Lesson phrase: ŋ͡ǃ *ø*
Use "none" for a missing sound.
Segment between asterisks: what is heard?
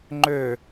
ø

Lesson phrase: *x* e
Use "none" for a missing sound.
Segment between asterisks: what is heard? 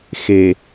x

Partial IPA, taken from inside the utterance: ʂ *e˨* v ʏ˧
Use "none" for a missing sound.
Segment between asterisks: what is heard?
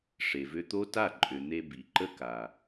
e˨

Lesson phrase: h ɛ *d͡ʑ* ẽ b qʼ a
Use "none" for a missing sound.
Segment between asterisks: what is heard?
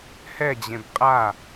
d͡ʑ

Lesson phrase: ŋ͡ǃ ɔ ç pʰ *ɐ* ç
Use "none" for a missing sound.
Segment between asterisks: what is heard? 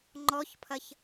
ɐ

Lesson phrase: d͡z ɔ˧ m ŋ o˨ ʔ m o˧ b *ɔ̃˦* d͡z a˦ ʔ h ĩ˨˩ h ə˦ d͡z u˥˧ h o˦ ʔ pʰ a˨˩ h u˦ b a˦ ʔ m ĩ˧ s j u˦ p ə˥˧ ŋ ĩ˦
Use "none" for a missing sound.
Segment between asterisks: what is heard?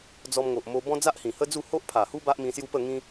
ɔ̃˦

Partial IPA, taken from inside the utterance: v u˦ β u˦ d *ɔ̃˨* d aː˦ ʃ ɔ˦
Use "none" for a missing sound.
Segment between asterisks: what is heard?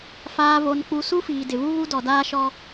ɔ˨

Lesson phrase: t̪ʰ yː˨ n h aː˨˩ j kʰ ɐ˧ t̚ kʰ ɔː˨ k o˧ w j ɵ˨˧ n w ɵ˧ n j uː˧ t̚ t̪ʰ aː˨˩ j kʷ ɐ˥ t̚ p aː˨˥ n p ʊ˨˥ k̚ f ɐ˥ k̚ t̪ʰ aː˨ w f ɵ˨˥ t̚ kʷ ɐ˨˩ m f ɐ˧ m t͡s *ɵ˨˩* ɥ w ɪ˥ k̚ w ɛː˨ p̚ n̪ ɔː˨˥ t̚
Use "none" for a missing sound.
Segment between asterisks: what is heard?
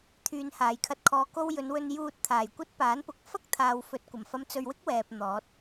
ɵ˧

